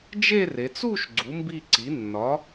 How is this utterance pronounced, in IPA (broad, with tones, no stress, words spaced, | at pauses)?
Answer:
d͡ʒe˥˧re˩˧t͡s u˥˧ʃ ɡ͡ǀu˩˥mbi˥˧ǀi˩˥ nːɒ˩˥